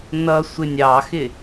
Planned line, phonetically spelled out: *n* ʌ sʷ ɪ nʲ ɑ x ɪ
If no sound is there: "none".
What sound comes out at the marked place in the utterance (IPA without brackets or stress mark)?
n